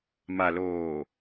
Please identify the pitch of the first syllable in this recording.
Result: low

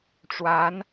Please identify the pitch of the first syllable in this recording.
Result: rising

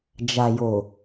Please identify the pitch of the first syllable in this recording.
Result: low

